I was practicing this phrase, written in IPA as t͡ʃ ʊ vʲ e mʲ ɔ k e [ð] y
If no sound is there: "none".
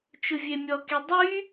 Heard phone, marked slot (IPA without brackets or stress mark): dˤ